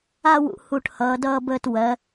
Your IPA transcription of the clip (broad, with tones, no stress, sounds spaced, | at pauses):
a˥˧ w ṵ˧ h u˧˩ ʈ h ʌː˩˧ d ʌː˧ b əː˧ t w ɜ˩˧